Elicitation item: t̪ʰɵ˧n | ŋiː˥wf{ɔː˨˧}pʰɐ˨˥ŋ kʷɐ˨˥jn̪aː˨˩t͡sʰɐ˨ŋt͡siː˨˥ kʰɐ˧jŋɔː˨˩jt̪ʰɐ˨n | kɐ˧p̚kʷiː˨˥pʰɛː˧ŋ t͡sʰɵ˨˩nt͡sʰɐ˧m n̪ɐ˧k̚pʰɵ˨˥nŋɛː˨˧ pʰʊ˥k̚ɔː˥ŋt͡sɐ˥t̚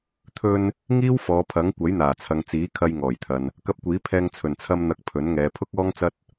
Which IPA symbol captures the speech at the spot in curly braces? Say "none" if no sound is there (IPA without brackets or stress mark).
ɔː˨˧